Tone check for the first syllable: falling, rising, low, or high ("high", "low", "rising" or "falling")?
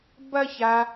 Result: high